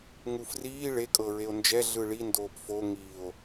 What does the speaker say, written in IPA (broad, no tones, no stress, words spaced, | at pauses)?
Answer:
ŋufriː ɭe kʼɤɹeo̯nd͡ʒɛ ɮɯɭi ndoːpfo ŋio̯